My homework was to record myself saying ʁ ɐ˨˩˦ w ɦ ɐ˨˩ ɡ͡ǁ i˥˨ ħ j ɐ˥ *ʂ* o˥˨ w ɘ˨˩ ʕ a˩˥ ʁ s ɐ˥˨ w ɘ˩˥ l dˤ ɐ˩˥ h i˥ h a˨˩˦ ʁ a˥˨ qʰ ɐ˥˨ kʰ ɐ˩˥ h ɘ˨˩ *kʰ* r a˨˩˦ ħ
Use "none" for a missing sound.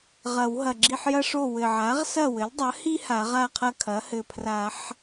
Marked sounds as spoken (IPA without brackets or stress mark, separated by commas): ʂ, pʰ